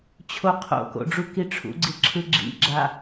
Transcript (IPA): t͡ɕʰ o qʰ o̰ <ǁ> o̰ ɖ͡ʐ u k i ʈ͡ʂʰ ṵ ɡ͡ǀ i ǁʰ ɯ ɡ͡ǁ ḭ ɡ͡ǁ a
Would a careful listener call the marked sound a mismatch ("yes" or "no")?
yes